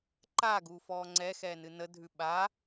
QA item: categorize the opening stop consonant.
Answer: click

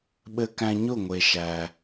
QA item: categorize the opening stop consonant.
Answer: implosive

